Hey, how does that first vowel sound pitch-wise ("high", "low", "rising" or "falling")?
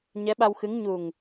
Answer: rising